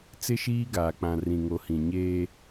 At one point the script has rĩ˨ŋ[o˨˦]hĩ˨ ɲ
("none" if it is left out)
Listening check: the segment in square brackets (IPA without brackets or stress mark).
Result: o˨˦